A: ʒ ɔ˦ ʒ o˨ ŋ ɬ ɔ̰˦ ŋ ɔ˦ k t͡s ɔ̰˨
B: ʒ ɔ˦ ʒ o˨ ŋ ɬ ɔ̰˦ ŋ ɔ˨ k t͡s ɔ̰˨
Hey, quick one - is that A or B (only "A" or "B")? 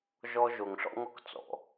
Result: A